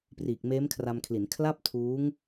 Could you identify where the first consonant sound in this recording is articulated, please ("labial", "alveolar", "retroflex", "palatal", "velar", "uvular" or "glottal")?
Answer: labial